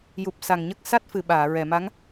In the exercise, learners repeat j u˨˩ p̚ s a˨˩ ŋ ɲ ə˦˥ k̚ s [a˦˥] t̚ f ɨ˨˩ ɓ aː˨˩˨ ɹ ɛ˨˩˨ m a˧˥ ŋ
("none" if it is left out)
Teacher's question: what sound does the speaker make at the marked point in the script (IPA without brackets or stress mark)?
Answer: a˦˥